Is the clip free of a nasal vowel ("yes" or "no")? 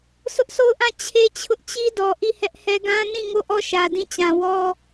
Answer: no